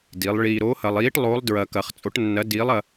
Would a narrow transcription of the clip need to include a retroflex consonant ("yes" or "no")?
yes